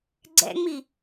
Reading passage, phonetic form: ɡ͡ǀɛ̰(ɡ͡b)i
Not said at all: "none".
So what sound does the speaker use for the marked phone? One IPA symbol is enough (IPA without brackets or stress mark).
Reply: ŋ͡m